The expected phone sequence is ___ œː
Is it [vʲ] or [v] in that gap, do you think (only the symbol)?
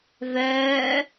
v